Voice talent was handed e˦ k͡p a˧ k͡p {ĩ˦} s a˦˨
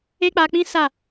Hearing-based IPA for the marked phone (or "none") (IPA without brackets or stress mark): ĩ˦